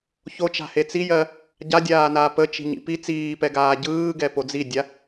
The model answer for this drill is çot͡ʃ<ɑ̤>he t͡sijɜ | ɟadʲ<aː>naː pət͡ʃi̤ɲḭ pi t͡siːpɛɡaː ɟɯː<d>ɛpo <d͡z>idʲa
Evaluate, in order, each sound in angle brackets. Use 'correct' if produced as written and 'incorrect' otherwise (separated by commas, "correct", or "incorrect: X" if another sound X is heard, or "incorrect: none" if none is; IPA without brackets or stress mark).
incorrect: a̤, correct, incorrect: ɡ, correct